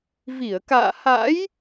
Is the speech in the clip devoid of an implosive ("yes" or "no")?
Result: yes